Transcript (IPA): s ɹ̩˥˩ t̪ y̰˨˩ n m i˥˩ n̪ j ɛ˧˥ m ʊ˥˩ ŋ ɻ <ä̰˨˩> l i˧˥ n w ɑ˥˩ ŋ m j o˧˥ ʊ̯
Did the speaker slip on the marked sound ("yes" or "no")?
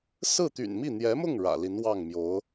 no